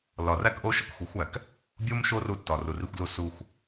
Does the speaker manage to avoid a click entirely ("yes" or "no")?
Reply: yes